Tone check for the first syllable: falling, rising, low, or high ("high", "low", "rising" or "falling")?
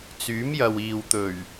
rising